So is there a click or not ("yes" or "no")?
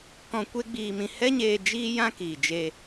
no